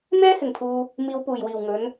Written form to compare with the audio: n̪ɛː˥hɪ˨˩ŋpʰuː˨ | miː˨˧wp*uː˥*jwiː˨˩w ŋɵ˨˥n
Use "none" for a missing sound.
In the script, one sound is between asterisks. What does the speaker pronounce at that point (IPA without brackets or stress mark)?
uː˨˩